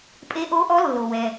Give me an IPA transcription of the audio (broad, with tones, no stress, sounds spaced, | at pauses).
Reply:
pʼ e˧˥ ʔ o˧˥ ʔ ɔ˧˥ lː o˩ w ɛ˩